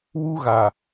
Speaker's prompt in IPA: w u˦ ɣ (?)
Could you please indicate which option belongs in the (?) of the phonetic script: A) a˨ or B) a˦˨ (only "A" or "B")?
A